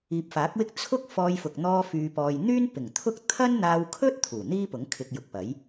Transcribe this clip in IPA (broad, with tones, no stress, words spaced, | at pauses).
iː˨p̚faː˨˥k̚wɪ˥k̚ t͡sʰʊ˥k̚ fɔː˧jfʊ˨k̚ n̪ɔː˧ fyː˧pɔː˧j n̪yː˥npɪ˨˩ŋt̪ʰʊ˥k̚ t̪ʰɐ˥nn̪aː˧wkʰɵ˥t̚ t̪ʰuː˨˩n̪iː˥pʊ˨˥ŋ kʰɪ˧k̚jʊ˨k̚pɐ˨˥j